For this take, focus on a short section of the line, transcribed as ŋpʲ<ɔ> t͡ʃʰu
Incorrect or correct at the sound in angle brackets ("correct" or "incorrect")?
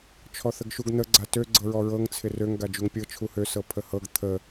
incorrect